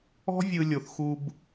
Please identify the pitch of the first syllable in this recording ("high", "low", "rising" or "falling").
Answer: high